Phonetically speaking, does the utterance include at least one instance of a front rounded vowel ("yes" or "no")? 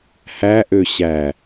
yes